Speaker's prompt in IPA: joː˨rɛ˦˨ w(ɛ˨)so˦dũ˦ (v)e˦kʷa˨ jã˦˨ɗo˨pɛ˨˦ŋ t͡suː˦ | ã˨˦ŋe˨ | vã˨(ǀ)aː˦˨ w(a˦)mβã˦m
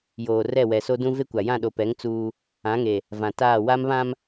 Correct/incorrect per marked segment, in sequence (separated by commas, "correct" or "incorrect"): correct, correct, incorrect, correct